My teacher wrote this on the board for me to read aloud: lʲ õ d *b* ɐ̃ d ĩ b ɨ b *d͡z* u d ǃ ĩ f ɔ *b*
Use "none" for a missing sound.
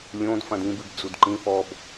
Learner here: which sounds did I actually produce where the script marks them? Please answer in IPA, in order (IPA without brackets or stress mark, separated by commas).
f, d͡z, b